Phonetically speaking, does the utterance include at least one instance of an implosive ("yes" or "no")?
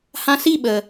yes